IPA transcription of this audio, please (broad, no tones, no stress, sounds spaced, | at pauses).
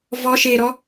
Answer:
v ɔ ʃ e ɾ ɔ